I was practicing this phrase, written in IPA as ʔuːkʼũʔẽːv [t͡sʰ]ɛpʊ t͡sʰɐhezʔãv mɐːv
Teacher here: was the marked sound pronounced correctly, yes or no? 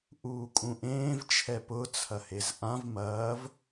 no